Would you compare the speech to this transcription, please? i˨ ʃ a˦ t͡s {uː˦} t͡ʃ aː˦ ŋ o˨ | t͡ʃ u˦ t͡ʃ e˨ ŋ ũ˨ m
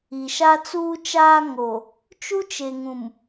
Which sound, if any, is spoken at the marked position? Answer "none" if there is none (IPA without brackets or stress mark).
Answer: uː˦